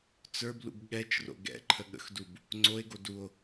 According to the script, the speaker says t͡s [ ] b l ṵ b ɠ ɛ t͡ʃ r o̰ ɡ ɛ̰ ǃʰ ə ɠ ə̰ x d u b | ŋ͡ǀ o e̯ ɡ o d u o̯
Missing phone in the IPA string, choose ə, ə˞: ə˞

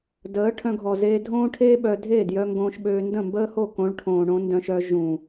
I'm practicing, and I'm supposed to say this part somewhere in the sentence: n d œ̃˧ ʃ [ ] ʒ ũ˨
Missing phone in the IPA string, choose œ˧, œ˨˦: œ˧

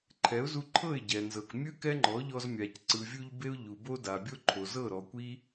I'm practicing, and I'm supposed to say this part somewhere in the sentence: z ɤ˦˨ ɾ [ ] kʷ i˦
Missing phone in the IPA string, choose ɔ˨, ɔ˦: ɔ˨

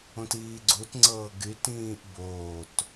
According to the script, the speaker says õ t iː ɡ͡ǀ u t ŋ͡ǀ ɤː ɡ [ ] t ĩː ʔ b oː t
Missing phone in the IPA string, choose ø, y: y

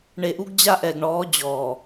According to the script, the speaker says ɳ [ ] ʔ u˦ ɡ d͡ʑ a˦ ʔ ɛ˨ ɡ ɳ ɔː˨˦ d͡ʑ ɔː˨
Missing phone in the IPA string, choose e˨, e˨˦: e˨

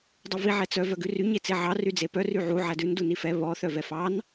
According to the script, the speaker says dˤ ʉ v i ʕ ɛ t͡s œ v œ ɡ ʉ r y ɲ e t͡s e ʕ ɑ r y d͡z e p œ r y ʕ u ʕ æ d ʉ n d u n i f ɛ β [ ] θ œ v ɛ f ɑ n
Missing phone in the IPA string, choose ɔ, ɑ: ɔ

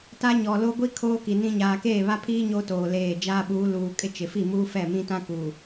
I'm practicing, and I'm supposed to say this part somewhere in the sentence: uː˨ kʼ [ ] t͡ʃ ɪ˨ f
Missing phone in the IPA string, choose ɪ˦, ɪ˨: ɪ˦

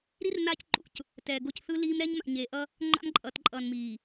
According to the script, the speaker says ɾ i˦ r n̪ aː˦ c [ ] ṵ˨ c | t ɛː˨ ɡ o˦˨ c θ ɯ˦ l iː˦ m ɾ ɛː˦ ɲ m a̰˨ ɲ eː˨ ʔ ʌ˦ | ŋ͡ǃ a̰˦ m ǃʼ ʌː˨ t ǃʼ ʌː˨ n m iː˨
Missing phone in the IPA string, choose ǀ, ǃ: ǃ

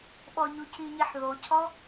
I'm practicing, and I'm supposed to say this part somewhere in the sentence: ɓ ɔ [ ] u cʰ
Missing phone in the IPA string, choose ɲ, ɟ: ɲ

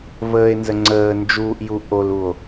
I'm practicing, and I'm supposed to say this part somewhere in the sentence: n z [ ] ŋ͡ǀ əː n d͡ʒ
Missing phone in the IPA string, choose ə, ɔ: ə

